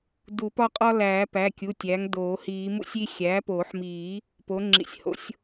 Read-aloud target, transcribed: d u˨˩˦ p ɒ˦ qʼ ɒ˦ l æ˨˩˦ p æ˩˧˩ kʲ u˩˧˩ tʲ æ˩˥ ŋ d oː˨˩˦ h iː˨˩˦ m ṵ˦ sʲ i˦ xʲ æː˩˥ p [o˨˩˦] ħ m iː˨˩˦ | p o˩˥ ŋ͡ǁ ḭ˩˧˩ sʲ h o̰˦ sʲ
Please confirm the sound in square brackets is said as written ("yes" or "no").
yes